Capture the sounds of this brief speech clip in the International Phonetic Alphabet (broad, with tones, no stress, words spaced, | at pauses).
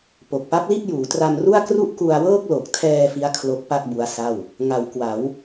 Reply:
po˨˩k̚pa˦˥p̚li˥˩t̚juː˩˦ tra˧m ru˥˩a̯kru˥˩ʔ ku˧a̯wɤː˥˩k̚ lo˨˩k̚tʰɛː˧ fi˦˥a̯ kʰlo˦˥k̚pa˥˩k̚ bu˦˥a̯sa˥˩w | ŋa˩˦wkwa˩˦w